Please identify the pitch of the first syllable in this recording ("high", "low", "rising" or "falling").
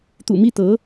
low